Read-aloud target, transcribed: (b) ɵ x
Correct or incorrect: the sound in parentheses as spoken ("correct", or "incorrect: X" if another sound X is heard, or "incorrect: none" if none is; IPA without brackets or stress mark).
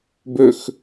correct